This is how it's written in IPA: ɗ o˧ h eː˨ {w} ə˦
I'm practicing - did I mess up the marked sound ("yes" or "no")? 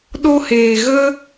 yes